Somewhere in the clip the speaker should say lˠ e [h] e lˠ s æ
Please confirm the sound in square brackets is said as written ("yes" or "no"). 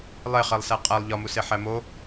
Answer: no